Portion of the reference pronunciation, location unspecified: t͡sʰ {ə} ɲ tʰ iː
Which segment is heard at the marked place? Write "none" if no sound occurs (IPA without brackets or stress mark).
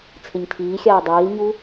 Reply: ɪ